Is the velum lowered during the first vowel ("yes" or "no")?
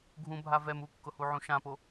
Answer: yes